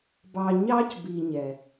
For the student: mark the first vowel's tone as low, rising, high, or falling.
low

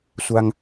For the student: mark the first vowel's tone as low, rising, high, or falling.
high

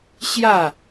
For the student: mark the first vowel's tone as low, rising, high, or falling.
falling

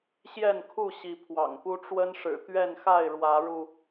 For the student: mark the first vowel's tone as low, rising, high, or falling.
falling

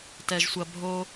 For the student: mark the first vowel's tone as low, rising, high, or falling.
low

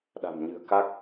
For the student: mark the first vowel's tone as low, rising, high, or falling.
low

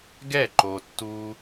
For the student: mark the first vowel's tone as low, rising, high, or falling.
falling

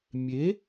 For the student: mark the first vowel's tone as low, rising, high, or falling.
rising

